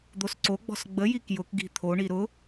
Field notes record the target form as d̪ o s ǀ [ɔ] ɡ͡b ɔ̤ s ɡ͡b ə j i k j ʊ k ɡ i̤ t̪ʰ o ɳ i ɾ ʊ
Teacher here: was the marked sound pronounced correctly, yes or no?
no